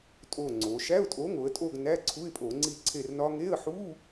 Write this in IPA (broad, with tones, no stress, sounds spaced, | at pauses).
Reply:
tʼ o˦˨ ŋ͡ǀ o˩˧ ʃ æ˧˥˧ ʊ̯ tʼ o˨˥ ŋ o˩˧ ə̯ tʼ o˦˨ ɡ n æ˧˥˧ ǀʰ u˧˥˧ ɪ̯ pʼ o˧˩˧ ŋ͡ǀ i˦˨ ǀʰ e˦˨ r n ɒ˦˥ ŋ e˧˥˧ ə̯ ħ u˧˥˧